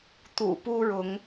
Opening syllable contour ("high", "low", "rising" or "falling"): low